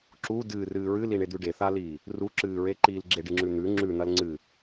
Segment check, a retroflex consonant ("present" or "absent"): present